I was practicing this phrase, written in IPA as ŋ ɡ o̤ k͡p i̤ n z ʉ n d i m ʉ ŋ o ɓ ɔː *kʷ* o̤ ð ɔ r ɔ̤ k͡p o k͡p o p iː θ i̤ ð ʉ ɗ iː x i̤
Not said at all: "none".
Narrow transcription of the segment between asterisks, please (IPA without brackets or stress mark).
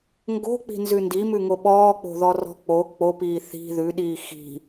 k͡p